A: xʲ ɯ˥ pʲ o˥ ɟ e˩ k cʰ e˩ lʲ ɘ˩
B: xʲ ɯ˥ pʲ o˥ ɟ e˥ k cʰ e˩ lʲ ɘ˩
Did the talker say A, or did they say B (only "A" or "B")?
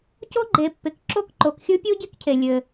B